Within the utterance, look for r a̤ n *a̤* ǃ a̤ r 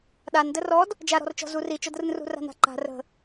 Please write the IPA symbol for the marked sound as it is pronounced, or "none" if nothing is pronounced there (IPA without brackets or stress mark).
a̤